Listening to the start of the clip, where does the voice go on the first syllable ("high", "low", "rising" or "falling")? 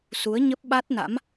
rising